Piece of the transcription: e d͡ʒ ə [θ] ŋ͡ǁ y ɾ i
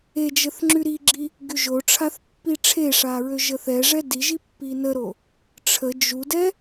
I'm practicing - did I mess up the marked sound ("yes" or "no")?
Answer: no